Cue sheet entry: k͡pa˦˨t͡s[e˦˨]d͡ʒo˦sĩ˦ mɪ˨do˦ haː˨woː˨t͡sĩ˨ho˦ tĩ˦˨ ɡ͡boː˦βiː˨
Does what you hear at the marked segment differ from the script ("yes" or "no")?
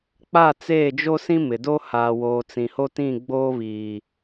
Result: yes